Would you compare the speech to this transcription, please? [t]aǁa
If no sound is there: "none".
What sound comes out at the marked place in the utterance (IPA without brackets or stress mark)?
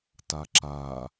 t